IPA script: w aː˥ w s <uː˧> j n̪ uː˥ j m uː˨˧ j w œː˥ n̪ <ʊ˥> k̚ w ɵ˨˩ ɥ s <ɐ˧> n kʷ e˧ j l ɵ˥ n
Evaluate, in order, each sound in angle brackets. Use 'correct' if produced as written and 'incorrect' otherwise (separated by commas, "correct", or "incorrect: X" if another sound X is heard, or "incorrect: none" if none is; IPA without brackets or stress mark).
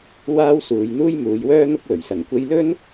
incorrect: uː˨˧, correct, incorrect: ɐ˨˩